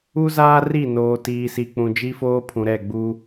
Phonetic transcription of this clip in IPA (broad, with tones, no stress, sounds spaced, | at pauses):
u˦ z aː˦ r i˦˨ n oː˨ t iː˨ s i˨ k͡p ũ˨ d͡ʒ i˦ f oː˦ pʰ ũ˨ ɾ ɛ˦˨ ɡ͡b u˦